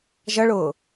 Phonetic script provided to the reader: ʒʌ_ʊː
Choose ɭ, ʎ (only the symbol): ɭ